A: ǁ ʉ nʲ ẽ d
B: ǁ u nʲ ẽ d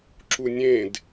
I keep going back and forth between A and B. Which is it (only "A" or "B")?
B